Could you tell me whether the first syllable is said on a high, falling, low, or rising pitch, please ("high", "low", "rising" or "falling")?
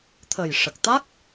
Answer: low